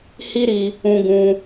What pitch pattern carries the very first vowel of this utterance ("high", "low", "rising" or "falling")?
high